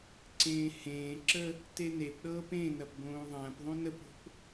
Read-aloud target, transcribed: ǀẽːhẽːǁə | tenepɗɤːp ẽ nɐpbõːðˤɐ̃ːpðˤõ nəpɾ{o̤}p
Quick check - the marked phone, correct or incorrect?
correct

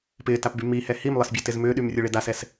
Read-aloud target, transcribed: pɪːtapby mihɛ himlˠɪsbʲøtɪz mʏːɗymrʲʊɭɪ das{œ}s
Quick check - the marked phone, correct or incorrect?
incorrect: ɛ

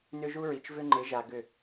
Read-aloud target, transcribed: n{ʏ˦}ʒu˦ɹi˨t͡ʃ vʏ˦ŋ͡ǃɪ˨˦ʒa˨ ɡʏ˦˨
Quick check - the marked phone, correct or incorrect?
correct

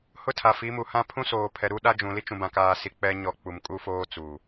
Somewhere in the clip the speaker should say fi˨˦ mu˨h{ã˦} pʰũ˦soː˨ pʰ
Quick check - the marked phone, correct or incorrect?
correct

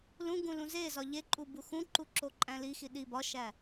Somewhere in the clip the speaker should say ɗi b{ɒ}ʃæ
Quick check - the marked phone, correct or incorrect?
correct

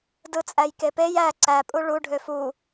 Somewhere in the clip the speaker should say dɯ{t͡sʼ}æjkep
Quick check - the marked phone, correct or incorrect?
correct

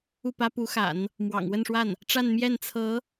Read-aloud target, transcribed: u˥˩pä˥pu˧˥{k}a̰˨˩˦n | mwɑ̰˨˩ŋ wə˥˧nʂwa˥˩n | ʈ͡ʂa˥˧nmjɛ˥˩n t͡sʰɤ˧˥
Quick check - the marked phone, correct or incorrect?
incorrect: x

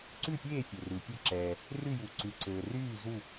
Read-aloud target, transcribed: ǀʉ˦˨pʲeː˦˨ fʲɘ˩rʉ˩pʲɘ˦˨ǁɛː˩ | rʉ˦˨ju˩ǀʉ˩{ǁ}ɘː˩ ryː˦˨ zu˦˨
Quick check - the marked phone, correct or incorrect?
incorrect: ǀ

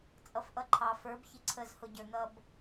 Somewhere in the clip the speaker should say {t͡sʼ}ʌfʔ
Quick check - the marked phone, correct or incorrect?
correct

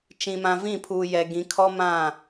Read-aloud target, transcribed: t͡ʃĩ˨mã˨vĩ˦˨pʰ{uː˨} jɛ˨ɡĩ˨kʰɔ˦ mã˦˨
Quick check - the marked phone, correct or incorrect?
correct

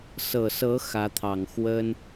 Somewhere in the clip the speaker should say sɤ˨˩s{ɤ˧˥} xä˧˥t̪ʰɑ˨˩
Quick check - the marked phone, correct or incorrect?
correct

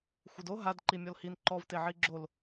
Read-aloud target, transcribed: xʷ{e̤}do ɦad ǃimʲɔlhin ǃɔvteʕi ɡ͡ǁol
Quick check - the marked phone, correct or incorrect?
incorrect: e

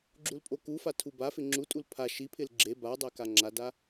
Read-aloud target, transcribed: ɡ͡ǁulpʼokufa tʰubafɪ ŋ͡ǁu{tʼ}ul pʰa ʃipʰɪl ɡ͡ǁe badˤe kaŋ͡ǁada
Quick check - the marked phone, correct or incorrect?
correct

